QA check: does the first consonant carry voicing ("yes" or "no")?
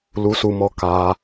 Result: yes